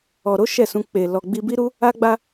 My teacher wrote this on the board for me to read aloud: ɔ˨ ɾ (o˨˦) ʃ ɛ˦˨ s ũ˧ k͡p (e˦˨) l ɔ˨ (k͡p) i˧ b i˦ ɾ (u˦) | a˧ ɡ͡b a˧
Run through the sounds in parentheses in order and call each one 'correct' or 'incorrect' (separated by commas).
correct, incorrect, incorrect, correct